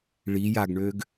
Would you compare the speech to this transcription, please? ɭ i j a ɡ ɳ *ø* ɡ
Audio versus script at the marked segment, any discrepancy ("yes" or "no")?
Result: no